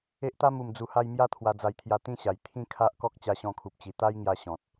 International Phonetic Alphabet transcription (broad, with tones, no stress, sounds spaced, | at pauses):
e˦ ʔ t̪ a˦ m u˨˩ m d͡z u˨˩ h a˧ j m j a˦ t̪ʰ w a˧ d͡z a˧ j t̪ʰ j a˧ t̪ ĩ˦ ɕ a˨˩ j t̪ʰ ĩ˦ kʰ a˦ ʔ k ɔ˦ k̚ t͡ɕ a˧ ɕ ɔ̃˧ kʰ u˨ p̚ t͡ɕ i˨˩ t̪ a˦ j ŋ j a˧ ɕ ɔ̃˨ t̚